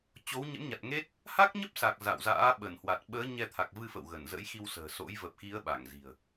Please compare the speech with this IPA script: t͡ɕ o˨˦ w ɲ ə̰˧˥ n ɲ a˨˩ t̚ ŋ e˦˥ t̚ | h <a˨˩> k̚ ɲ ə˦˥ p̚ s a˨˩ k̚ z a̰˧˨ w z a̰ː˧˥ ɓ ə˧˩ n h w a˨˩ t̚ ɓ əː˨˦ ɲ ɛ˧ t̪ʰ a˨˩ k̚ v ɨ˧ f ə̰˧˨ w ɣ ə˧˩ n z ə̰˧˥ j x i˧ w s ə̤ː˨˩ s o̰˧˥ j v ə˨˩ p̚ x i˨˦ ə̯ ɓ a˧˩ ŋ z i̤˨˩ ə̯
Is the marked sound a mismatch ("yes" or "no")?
yes